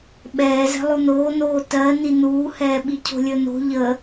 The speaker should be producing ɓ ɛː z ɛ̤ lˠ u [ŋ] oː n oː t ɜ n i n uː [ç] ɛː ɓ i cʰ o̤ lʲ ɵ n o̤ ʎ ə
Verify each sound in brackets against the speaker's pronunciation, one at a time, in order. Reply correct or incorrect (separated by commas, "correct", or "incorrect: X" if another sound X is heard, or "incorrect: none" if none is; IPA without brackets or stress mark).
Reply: incorrect: n, incorrect: h